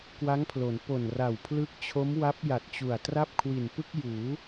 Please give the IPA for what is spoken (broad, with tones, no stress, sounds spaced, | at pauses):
k w a˦˥ ŋ pʰ l o˩˦ n p o˨˩ n r a˨˩ w pʰ l ɯ˦˥ k̚ t͡ɕʰ o˦˥ m w a˦˥ p̚ j a˨˩ t̚ t͡ɕ u˨˩ a̯ t r a˥˩ p̚ kʰ w i˨˩ n p ɯ˥˩ k̚ j uː˩˦